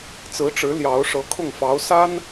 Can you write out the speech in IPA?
t͡s ɹ̩˧˥ ʈ͡ʂ ɻ̩˧˥ l j ɑ˧˥ ʊ̯ ʂ ɤ˧˥ kʰ ʊ˥˩ ŋ f ɑ˧˥ ʊ̯ s a˥ n

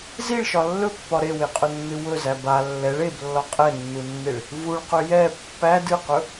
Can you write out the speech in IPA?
z i ɭ ʃ ɒ lː ɵ pː ɒ ɾ e w e qʼ ɵ nː ɨ w ɵ z æ b a lː ɛ ɭ e b lː ɒ qʼ ɛ nː u nː e ɭ | v u ɭ q ɵ j ɛ pː æ d ɨ q ɵ

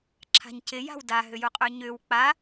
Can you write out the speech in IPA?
ǁʰ a̤ ɲ c ɪ j a̤ w d a ɦ ʏ j u qʼ ø ɲ ʏ w k͡p a

